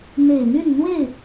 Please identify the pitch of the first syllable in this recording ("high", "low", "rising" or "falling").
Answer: low